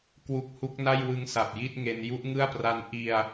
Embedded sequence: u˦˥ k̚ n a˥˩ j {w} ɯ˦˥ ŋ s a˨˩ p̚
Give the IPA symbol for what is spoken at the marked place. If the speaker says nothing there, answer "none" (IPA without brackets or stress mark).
w